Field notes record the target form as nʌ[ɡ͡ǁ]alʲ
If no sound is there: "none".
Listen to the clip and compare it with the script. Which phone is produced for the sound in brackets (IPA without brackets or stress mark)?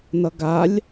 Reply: ɡ